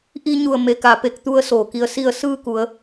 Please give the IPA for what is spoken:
ʔ i˧ ɲ u˧˩ ə̯ m e˩ k a˩ p e˧˩ k̚ t̪ u˧ ə̯ s oː˧˩ k i˧ ə̯ s i˥˨ ə̯ s ɯː˥˨ k u˩˧ ə̯

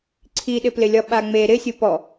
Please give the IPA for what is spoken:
ǀʰ i ɗ ɪ p l ɪ lʲ ɒ ɓ a ŋ͡m e ɾ ɪ sʲ u p ɔ

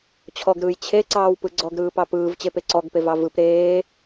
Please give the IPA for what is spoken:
t͡ɕʰ ɔ ɡ ɾ ɯː j t͡ɕʰ e ǀ ɑː w p ɯ ɡ͡ǀ ɔ ɡ ɾ ɯː p ɑ p ɯː v t͡ɕ e p e ǀ ɔ ɡ p e v ɑ v ɯ p ɾ eː

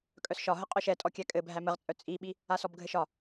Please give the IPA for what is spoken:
kʼ œ s ʃ ɒ ɦ ə qʼ œ ʃ ɛ tʼ ɔ kʲ æ kʼ ɘ bʱ æ m ə ʁ t͡sʼ œ t͡sʼ i ɓ i | a s ɔ b ɡʱ ɘ ʃ ɒ

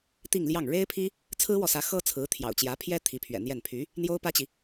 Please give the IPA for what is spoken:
t̪ i˥˧ ŋ l j ɑ˥˩ ŋ ɻ e˥ ɪ̯ pʰ i˥ | t͡sʰ ɹ̩˥ w ɔ˨ s ä˧˥ x ɤ˥ t͡sʰ ɹ̩˧˥ t̪ʰ j ɑ̰˨˩ ʊ̯ t͡ɕ j ä˧˥ pʰ j ɛ˥ t̪ʰ i˧˥ pʰ ɥ ɛ̰˨˩ n̪ j ɛ˥˩ n pʰ y˧˥ | n̪ j o˥ ʊ̯ p ä˥ t͡ɕ i˨

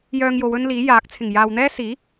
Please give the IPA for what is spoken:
j œː˧ ŋ j o˨˧ w ɵ˥ n l iː˨˥ j aː˨˥ k̚ t͡sʰ ɪ˨˩ ŋ j aː˨ w n̪ ɛː˥ s iː˨˥

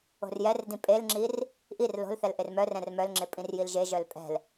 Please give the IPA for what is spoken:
o̤ r j ɛ r d ĩ pʼ e l ŋ͡ǁ i r | ʔ i r l o̤ l θ ɛ l ʔ e r m œ r ɛ̃ r m œ l ŋ͡ǁ e pʼ ĩ r j i l ʒ e ʒ œ l pʼ ɛ̤ l

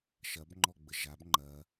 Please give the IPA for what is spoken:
ʃ ɐ b ŋ͡ǃ ɔ ɡ͡b ə ʒ a b ŋ͡ǃ ɐ

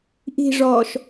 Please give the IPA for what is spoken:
ʔ i̤ ʐ ɔː ʃ

